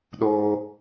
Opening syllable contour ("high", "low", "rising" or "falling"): high